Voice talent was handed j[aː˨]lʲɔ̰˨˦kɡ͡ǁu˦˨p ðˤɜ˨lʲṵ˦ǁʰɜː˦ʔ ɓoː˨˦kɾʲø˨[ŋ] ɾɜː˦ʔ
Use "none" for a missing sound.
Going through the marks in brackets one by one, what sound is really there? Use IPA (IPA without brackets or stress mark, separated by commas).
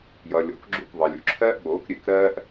ʌː˨, k